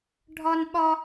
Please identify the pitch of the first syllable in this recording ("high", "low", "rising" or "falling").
high